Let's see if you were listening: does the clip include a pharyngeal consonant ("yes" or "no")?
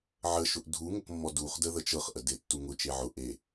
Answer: yes